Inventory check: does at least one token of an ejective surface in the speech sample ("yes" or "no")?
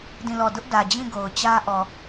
no